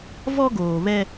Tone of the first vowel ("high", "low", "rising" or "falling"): high